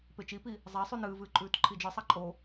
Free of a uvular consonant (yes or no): yes